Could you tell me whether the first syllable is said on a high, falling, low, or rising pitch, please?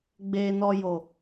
low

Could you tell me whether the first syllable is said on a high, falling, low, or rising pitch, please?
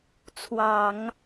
low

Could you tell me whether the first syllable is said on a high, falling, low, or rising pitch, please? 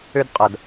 high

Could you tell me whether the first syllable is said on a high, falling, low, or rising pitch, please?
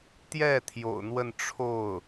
falling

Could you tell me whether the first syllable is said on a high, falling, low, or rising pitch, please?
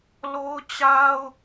high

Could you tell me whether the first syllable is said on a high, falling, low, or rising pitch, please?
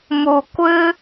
low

